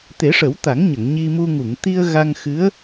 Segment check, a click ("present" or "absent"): absent